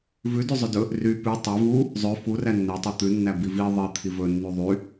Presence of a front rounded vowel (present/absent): present